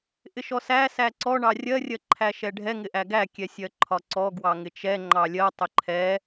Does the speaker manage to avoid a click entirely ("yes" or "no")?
no